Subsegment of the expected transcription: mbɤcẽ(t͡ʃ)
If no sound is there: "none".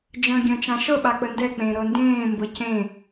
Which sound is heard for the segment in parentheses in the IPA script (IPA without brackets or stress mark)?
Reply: none